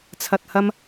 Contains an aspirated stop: yes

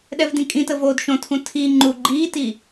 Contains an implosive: yes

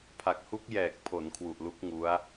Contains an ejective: no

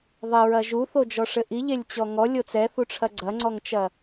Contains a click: yes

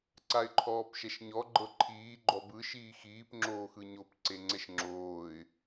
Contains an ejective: no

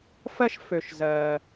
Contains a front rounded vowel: yes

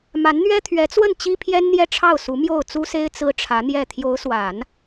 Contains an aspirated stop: yes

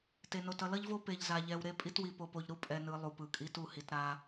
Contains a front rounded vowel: no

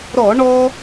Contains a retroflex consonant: yes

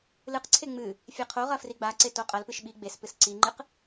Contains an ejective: yes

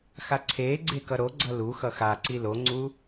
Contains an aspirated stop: yes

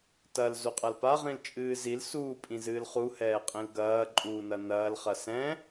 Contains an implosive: no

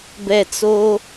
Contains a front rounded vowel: no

